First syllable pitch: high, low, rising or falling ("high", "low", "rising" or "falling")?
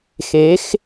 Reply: rising